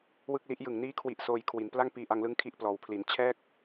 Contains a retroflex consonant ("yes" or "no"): no